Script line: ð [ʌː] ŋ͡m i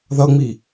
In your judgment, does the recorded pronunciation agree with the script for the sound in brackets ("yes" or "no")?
no